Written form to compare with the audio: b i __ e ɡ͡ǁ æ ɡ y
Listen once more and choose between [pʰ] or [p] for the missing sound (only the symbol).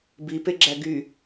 p